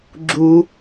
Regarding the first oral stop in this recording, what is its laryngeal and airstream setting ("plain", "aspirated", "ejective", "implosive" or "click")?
click